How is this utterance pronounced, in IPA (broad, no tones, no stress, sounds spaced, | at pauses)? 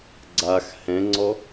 ɡ͡ǀ a x h ɛ̃ ŋ͡ǀ ɔ